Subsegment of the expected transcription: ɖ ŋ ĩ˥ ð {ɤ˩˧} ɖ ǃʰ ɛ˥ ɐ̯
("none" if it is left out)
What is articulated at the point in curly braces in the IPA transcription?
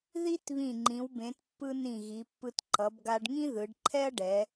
ɯ˩˧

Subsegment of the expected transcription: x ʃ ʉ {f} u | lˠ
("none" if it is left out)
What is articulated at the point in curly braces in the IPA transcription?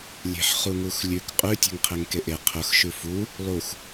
f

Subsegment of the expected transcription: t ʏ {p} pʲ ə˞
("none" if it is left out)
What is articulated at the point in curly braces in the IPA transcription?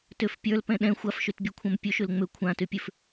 f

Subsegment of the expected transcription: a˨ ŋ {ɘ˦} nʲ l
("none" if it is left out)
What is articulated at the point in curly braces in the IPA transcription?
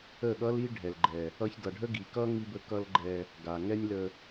ɛ˦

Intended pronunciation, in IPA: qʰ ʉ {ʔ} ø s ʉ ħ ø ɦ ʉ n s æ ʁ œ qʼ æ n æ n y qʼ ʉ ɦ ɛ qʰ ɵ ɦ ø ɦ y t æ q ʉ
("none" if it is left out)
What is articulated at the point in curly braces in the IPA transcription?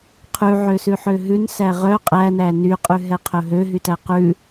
ʕ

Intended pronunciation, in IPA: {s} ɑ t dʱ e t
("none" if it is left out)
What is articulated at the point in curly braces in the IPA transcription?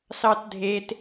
s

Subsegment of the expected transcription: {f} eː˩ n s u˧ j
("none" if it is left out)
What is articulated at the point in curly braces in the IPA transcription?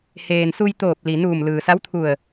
h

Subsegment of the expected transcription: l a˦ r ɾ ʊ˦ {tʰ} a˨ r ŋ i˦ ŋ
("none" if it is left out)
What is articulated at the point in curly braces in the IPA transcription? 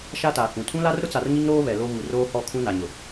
t͡s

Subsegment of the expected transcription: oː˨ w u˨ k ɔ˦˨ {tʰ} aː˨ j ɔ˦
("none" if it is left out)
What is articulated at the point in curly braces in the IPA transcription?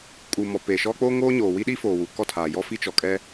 tʰ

